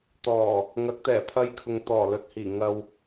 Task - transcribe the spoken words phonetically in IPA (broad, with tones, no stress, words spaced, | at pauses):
t̪ɔː˨˩ | ŋɐ˨˥k̚t̪ɛː˨˩pʰɐ˧jkʰʊ˨ŋ t̪ɔː˨˩lɵ˨t̚hiː˨˩ ŋɐ˧w